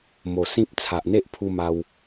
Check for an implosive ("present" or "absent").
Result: absent